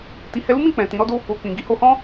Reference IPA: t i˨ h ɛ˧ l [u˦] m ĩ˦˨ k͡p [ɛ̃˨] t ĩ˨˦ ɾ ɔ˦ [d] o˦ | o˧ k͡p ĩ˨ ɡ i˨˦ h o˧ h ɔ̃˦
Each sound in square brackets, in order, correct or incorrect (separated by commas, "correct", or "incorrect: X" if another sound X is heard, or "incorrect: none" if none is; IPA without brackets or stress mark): correct, correct, correct